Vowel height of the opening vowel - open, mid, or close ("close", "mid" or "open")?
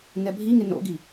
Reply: mid